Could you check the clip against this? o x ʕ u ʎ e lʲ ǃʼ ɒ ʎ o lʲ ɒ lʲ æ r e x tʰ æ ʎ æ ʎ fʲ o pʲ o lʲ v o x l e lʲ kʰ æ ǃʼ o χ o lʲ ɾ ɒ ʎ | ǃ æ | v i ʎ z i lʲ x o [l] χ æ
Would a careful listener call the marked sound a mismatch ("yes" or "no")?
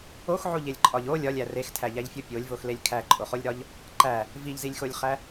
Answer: yes